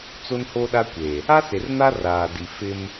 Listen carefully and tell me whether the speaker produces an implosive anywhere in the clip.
yes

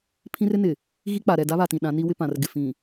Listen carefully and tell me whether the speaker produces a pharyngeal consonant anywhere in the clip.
no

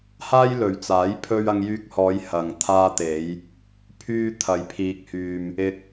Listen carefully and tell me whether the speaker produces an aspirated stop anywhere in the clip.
yes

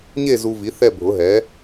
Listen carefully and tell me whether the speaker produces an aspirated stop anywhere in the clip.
no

